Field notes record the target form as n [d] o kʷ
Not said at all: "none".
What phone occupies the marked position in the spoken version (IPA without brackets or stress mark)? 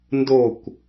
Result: d